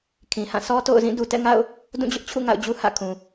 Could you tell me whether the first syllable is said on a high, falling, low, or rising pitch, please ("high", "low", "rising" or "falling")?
low